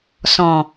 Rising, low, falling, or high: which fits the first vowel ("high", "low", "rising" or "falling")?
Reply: low